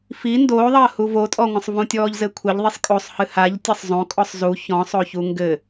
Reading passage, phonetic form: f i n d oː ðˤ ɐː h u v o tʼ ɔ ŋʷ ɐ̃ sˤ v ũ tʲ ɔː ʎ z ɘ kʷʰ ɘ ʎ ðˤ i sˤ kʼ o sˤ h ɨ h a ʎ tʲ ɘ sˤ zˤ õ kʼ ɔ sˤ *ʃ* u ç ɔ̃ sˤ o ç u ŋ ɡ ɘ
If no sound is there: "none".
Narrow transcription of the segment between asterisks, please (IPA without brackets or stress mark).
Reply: z